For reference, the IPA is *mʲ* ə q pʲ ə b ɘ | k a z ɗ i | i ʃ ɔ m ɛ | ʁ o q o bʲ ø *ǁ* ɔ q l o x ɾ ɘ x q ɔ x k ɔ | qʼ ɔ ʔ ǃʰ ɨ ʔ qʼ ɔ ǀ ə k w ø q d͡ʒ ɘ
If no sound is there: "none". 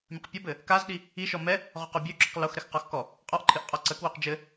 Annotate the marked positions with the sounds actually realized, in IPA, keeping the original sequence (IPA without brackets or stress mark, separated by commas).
mʲ, ǁ